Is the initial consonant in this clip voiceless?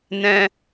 no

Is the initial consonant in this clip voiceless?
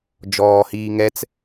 no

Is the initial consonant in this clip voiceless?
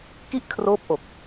yes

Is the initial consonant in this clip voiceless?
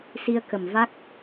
yes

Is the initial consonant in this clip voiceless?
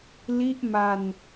no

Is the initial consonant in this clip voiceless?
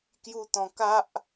yes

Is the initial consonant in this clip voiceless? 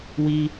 no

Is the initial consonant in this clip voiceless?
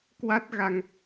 yes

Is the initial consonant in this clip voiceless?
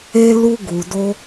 no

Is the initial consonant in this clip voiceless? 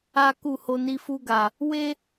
yes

